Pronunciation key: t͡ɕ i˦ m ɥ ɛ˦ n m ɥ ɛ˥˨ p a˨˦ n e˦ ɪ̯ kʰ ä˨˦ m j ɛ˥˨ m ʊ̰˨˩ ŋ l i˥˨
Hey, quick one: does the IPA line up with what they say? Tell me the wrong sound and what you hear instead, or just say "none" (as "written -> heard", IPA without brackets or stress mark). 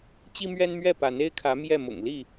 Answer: none